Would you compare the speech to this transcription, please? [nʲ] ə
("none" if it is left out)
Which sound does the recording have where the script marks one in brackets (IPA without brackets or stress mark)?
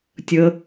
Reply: tʲ